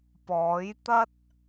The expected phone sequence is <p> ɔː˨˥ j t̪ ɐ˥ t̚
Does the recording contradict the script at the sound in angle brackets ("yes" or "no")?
no